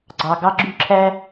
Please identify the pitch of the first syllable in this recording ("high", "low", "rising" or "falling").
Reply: low